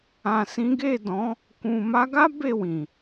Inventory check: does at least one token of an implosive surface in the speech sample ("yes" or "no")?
no